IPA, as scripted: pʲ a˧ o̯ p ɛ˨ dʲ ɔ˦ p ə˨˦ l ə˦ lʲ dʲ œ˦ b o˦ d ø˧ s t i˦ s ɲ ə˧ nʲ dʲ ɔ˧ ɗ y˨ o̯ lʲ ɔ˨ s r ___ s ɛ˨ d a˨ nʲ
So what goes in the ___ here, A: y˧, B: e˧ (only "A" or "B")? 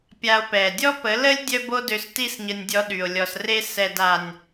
B